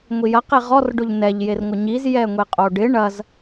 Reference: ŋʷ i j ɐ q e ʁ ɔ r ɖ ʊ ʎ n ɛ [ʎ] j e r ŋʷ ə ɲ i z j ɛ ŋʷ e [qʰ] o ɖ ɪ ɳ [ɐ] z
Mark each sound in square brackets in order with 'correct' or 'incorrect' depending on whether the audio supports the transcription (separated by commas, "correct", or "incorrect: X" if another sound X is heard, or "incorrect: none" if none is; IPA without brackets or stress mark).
correct, incorrect: qʼ, correct